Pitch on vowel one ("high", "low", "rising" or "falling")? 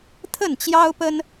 falling